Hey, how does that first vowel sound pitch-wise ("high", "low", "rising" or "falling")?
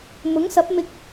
rising